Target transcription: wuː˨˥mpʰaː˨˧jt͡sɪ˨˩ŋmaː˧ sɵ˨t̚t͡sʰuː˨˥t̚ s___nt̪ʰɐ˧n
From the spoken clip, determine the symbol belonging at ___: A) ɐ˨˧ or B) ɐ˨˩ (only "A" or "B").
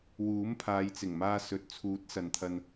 A